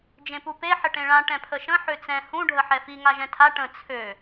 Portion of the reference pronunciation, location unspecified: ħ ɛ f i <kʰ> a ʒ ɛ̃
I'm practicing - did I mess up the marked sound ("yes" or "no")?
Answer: yes